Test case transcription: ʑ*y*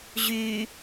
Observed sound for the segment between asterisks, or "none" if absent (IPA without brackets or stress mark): y